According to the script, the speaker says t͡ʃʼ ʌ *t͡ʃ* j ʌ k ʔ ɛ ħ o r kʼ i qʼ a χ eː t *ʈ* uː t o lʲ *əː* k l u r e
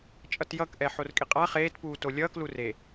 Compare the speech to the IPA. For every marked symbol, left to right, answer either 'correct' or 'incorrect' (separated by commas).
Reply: incorrect, incorrect, incorrect